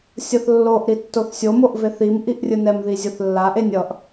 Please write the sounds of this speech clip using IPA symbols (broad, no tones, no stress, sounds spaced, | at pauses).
sʲ ʌ θ lː o ʔ ɾ i tː o θ sʲ o m o ʔ v e θ i m ʔ i ʔ rʲ ɯ n ɛ m ð i zʲ o θ lː a ʔ e nʲ ʌ ʔ